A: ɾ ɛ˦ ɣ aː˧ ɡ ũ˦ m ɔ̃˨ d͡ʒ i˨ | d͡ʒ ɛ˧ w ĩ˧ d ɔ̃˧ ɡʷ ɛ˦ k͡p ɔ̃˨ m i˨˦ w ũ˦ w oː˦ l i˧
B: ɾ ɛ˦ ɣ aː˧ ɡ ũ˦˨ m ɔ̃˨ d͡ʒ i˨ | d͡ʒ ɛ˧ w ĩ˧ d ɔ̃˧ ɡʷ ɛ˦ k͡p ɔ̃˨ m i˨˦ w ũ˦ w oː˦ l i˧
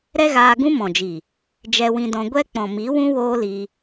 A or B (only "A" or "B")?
A